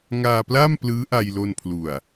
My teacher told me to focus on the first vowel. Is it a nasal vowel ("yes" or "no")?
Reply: no